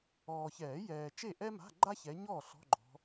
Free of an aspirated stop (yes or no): yes